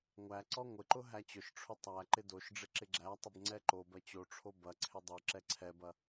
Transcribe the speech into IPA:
ŋʷ æ ǀ ɔ ŋʷ ɪ ǃ ʊ ɦ æ t͡ɕ ʊ ʃ ʈ͡ʂʰ ʊ tˤ æ ǃ ɪ d o ʃ ɖ͡ʐ ɪ ǁ ɪ ɡ͡ǁ æ tˤ ɪ b ŋ͡ǀ ɛ ǃ o b ɐ t͡ɕ o ʈ͡ʂʰ o b ɐ ǀʰ ɪ dˤ o ǁ ɛ ǀʰ ɛ b ɐ

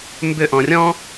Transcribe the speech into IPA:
m b ʏ ʔ ɔ̃ rʲ ɔ̃

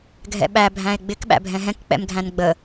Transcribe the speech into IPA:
ɡʱ ɛ̰ ɓ æ bʱ æ̃ e̯ ɡ͡b ɪ k ɓ æ̰ bʱ ɛ̃ ɦ ɛ̃ k k͡p ɛ̰ m ɡʱ æ̃ n ɡ͡b ə

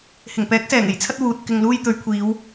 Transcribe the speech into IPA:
h ɪ˨˩ ŋ p ɛː˨˥ k̚ s ɛː˨˩ ŋ e˨˩ j t͡sʰ ɐ˥ t̚ w uː˨ t̚ k ɪ˨ ŋ l uː˧ j t̪ ɵ˨˧ ɥ kʷʰ iː˨˧ w

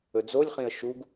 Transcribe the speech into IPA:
ɵ d͡z o lʲ χ ĩ ə̯ ʃ u ɡ

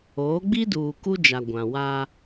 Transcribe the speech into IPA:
oː˨˦ ɡ͡b i˦ d uː˨ k u˦ d͡ʒ a˨ ɡʷ ã˨ w a˦

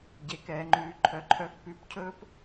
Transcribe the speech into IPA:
ɟ e˨ k ɛː˨ ŋ͡ǃ ʉː˨ ǃʰ œ˨ ǃʰ œː˧ k p ʉ˨˦ p cʰ ɵː˦ p

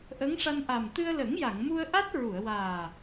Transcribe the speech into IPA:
ʔ ə˧˥ ŋ ʂ a˧ n ʔ a˨˩ m t̪ ɨ˧ ə̯ l ə˨˩˦ ŋ j a˨˩˨ ŋ m u˧ ə̯ ʔ a˦˥ t̚ ɹ u˨˩˨ ə̯ w aː˨˩

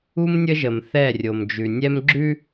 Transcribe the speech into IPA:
u˦ m nʲ ə˦ ʒ ə˨ m θ ɛ˦˨ rʲ o˨ m d͡ʒ ʉ˨ nʲ ɛ˦ m ɡ͡ǁ ʉ˦

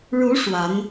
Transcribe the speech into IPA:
ɻ u˧˥ ʂ w a˧˥ n

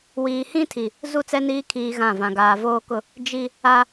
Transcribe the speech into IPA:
w iː˨ h ĩ˦ tʰ i˨ | z u˦˨ t͡s ɛ˦ n iː˦ kʰ iː˦ ɣ ã˦˨ v ã˨ ɡ aː˨ v oː˦ k ʊ˦ | d͡ʒ i˦ | a˦

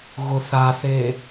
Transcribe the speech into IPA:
ɣ ʊ θ a θ e

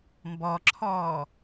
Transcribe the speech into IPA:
m b ɔ ǁʰ ɔː

